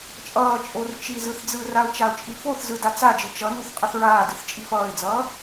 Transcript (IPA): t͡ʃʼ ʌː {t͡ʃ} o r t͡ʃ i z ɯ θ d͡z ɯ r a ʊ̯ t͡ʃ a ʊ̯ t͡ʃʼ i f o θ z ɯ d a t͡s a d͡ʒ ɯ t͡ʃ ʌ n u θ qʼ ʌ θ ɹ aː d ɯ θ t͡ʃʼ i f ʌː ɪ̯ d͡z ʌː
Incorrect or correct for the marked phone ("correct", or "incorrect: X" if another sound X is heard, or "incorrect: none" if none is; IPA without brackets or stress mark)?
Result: incorrect: t͡ʃʼ